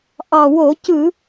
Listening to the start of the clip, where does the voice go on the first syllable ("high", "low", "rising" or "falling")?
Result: low